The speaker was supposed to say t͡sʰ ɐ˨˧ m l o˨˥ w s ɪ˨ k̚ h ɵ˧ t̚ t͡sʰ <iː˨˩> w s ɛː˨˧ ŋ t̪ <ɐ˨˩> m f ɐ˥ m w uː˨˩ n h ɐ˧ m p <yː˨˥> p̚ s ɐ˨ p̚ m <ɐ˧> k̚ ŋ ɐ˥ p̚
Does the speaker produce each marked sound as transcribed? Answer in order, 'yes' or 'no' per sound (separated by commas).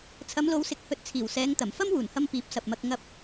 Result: yes, yes, no, yes